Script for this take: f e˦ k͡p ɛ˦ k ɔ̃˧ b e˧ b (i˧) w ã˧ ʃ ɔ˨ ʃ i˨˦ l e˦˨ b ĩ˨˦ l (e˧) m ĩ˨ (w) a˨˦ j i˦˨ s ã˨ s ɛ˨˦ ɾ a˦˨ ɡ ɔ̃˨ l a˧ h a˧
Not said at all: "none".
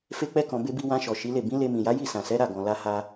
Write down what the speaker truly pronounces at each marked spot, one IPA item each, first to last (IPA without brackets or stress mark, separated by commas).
i˧, e˧, j